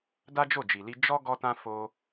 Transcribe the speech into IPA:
d a˦ d͡ʒ o˦˨ d͡ʒ i˨ l i˧ d͡ʒ ɔ˦ ɡ ɔ˧ t ã˧ f o˧

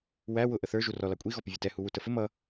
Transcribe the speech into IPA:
w æ w ʊ ʔ ə θ ə˞ ʒ u r ɔ l ɑ kʷʼ i ɣ ɔ p ɪ vʲ ʌ t ɛ h u w u t ə f ɪ m ʌ

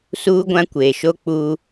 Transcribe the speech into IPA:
s uː˦ ɡʷ ã˦ kʷ eː˨ ʃ o˦ k͡p uː˦

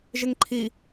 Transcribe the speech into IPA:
ʒ ɪ ŋ ǃʰ i

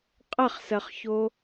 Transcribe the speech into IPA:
qʼ ɐ χ s ɜ χ ç o

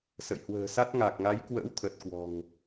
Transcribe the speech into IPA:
s ə̰˧˨ j h w ə̤ː˨˩ s a˦˥ t̚ ŋ a˨˩ k̚ ŋ a˨˦ j k w ə̰ː˧˥ w t̪ʰ ə˨˩ t̚ k w ɔ̤˨˩ ŋ

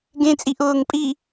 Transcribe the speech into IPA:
ɡ ẽ t͡sʼ i ʔ ʊː ŋ pʼ i

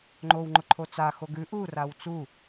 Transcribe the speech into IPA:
ŋ͡ǃ o w ŋ͡ǃ ʊ ǃʰ o t͡s a x o ɡ ʉ ʔ u r a w t͡s u

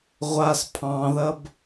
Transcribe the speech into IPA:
ʁʷ a s pʰ ɑ̃ ð ɐ b

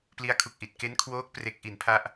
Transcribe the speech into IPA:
p l i˦˥ a̯ kʰ u˨˩ k̚ ʔ i˨˩ t̚ k e˦˥ n kʰ w oː˦˥ k̚ p r e˦˥ k̚ ʔ i˩˦ n pʰ a˦˥ ʔ

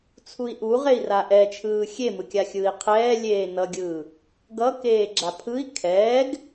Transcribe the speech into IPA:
t͡sʰ u i̯ ʔ u ʁ e i̯ r a ʔ ɛ t͡ʃʰ ɯː xʲ e m ɯ kʲ a xʲ ɯː i̯ qʰ ɛː lʲ eː n ʌ ɡʲ ɯː | ɡ ʌ k eː ɡ͡ǁ a pʰ ɯ i̯ kʰ ɛː ɡ

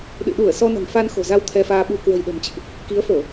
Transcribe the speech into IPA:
ɗ ɨ̰˧˨ ɗ u˧˩ ə̯ s ɔ˧ n ə̤˨˩ n f a˧ n x o̤˨˩ z a˧ w t̪ʰ ɛ˧ f aː˧ ɓ u˧ k w ə̤˨˩ j ɗ ə̤˨˩ m t͡ɕ ɨ̰˧˨ ʔ | k i˨˦ ə̯ f o˧˩˨

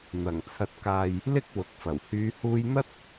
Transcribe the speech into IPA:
n̪ ɐ˨˩ ŋ t͡sʰ ɐ˨ t̚ k aː˨ j | l ɪ˥ k̚ w ʊ˨ k̚ f ɐ˨˩ w h yː˨˧ h uː˧ j n̪ ɐ˥ t̚

